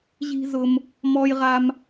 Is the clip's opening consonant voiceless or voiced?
voiced